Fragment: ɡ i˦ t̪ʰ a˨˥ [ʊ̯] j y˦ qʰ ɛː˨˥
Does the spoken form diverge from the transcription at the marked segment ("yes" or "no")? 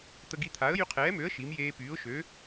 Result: yes